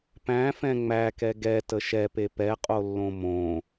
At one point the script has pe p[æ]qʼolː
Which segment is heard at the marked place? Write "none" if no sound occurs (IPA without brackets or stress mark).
ɛ